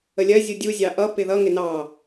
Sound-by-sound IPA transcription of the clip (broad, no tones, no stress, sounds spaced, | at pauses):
ə lʲ ɜ zʲ u dʲ u zʲ ɑ ʔ ʌ p ɪ ð ʌ ŋ ɪ n ɑ